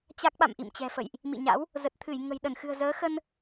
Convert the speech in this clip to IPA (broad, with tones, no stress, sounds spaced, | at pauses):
t͡ɕ a˦˥ k̚ ɓ a̰˧˨ m ʔ ḭ˧˨ m t͡ɕ ɛ̤˨˩ f ə̰˧˨ j ʔ | m ḭ˧˨ ɲ a̰˧˥ w | z ə˨˩ t̚ t̪ʰ ɨ˧˩ j ŋ ə̤˨˩ j ɗ ə˧˩ n x ɨ̤˨˩ ə̯ z əː˨˦ x ə˧ n